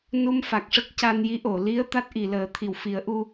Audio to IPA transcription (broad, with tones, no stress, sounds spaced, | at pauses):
n u˧ m f a˨˩ k̚ ʂ ə˦˥ k̚ c a˧ n j i˧˥ ʔ o˨˩˨ l i˧˥ ə̯ t̪ a˦˥ t̚ ʔ i˨˩˨ l əː˨˩˦ t̪ʰ i˨˩˨ w f i˨˩˦ ə̯ ʔ u˧